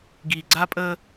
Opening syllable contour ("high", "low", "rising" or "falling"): low